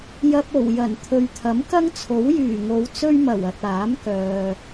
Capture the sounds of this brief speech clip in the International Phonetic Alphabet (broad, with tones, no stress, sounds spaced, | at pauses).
j ɐ˧ p̚ o˨˩ w j ɐ˨˩ n t̪ʰ ɵ˨ ɥ t̪ʰ ɐ˨˥ m k ɐ˥ ŋ t͡sʰ o˨˥ w j yː˨˩ ŋ o˨˧ w t͡s ɵ˥ ɥ m ɐ˨˩ w ɐ˨ t̚ aː˨˥ m k œː˨